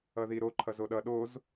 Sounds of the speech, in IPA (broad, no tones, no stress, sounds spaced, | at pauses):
ʌ ð i ɾ o ǃʰ ʌ z o ɗ ʌ ɗ o z